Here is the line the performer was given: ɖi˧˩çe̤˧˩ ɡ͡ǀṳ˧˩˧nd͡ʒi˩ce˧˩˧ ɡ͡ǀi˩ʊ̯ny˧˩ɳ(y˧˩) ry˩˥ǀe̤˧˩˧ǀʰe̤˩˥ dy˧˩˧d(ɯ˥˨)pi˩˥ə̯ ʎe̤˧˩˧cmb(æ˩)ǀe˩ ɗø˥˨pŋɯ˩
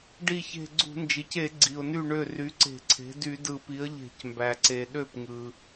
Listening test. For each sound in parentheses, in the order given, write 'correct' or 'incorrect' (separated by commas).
incorrect, incorrect, correct